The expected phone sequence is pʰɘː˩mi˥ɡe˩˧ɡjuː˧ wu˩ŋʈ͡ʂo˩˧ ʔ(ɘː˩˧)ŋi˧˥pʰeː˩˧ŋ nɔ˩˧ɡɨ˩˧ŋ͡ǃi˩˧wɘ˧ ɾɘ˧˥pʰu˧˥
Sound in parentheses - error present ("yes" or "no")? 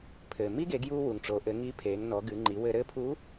yes